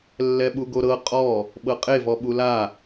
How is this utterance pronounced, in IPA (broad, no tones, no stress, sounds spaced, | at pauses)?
lː ɛ ɓ u ɡ o ɾ ɤ qʼ ɔ | ɓ ɤ qʼ e v ɔ ɓ u l a